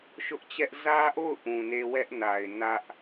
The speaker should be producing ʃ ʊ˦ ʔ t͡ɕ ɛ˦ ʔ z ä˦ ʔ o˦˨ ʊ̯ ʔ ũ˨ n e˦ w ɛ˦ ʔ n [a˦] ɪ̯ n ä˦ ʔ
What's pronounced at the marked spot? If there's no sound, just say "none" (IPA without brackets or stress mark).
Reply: a˨